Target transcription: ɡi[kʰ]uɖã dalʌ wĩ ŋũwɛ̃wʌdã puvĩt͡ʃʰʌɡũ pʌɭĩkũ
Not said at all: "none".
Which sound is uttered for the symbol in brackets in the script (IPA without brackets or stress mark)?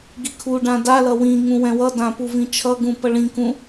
kʰ